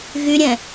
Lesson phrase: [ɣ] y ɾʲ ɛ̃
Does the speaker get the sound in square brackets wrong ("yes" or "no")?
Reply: no